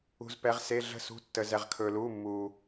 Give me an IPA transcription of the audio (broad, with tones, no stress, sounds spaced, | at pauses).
ṳ˧ z p ɛ˨˥ ʁ s e˧˥˧ ɮ ə̤˥˧ s ṳ˧˥˧ tː ə˧ z ɛ˧ ʁ kʰ ɵː˧ l uː˧˥˧ mː uː˧